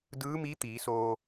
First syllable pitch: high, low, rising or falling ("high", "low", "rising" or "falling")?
rising